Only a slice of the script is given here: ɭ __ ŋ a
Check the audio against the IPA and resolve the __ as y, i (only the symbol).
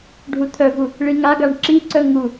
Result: i